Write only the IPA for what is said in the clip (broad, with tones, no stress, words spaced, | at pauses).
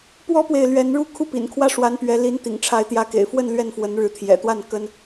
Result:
pwɔ˥pwe˨ɪ̯ lɥɛ˧˥nɻu˥˧ kʰu˥˩pḭ˨˩nkʰwä˥ʂwa˧˥n pɥɛ˧˥li˧˥nt̪ḭ˨˩ŋʈ͡ʂʰa˧˥ɪ̯ t̪jä˧˥kḛ˨˩ɪ̯fwə˥˧n lɥɛ˥˩nfwə˧˥nɻɻ̩˧˥ t̪ʰjɛ̰˨˩t̪wa˥˩n kə˥n